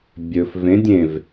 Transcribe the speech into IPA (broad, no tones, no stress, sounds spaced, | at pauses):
bʲ ɵ f v ẽ dʲ ẽ v